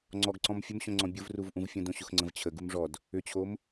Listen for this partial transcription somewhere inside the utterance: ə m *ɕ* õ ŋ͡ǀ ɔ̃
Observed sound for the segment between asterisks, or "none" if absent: ɕ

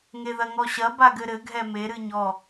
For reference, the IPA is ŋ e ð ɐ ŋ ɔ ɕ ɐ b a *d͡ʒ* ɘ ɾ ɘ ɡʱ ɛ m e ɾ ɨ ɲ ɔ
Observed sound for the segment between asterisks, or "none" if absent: ɡ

